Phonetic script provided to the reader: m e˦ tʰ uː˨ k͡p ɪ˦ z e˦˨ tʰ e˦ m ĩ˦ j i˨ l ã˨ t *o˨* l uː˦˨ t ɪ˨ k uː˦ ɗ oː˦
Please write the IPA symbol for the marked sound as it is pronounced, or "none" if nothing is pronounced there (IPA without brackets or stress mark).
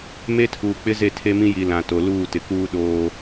o˨